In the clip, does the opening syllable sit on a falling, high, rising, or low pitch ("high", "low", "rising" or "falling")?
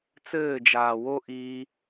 falling